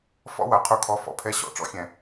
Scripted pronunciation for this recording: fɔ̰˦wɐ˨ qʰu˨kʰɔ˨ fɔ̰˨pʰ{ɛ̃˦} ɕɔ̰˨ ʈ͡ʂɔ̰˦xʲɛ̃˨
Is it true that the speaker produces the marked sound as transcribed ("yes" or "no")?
no